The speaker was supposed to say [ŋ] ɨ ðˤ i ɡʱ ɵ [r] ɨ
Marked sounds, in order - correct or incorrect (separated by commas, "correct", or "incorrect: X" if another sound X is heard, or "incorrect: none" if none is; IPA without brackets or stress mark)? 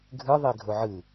incorrect: ɡʱ, incorrect: ʕ